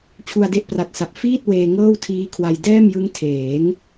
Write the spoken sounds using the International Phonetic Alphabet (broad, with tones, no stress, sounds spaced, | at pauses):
t͡ɕʰ u˧ a̯ d e˦˥ ʔ p r a˨˩ t̚ s a˨˩ p̚ f iː˥˩ t̚ w eː˧ ŋ ɤː˥˩ w tʰ iː˦˥ kʰ w a˧ j d ɛː˥˩ m j ɯ˦˥ ŋ tʰ eː˩˦ ŋ